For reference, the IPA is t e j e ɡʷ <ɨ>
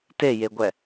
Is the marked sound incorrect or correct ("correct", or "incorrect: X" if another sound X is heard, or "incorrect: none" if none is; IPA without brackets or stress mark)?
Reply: incorrect: ɛ